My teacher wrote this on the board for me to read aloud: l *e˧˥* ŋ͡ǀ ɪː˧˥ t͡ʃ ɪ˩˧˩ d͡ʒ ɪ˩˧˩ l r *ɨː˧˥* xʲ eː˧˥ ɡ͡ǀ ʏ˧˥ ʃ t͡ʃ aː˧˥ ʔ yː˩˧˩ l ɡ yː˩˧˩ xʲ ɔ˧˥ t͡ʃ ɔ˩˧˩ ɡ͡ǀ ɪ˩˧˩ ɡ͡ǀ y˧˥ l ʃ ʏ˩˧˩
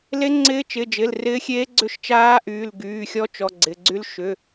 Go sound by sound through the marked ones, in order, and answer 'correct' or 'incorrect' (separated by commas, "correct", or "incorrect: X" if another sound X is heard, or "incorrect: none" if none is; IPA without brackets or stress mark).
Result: correct, incorrect: ɪː˧˥